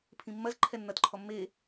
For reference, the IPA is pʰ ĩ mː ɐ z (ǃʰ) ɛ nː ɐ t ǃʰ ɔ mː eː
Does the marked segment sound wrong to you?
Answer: no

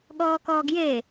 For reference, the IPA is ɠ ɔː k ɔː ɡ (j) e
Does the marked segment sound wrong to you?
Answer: no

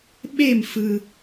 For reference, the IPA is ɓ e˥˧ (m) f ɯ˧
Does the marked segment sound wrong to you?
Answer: no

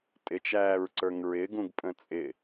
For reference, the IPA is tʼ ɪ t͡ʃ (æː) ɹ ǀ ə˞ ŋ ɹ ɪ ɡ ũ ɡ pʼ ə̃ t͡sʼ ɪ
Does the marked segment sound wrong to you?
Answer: no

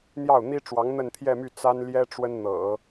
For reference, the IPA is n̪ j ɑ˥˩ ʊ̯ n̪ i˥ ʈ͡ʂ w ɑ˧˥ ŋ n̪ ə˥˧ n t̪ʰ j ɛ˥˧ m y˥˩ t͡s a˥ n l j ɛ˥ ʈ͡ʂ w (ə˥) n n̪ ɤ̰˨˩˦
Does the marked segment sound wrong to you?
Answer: no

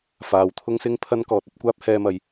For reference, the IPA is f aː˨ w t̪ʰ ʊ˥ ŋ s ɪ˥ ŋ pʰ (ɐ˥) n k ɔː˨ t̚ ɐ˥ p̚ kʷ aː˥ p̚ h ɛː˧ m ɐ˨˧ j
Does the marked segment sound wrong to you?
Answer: no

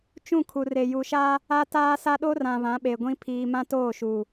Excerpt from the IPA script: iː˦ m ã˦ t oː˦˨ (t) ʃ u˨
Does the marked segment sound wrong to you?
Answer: yes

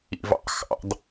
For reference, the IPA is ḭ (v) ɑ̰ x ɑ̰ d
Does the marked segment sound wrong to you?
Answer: no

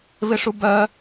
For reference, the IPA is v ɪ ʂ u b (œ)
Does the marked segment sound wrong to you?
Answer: no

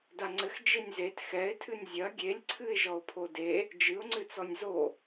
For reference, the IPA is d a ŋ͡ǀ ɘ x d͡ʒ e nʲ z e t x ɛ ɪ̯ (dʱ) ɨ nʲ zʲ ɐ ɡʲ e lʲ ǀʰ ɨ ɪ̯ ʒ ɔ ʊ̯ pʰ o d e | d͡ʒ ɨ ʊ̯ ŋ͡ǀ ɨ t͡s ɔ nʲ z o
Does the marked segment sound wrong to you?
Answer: yes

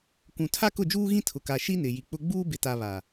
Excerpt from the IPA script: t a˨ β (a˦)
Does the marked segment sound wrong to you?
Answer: yes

